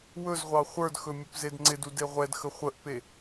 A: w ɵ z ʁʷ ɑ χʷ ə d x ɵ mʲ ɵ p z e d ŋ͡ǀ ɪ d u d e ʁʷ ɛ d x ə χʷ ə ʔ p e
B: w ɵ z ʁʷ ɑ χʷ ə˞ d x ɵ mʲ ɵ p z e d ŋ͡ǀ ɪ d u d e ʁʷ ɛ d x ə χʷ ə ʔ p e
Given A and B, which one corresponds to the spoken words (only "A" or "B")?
B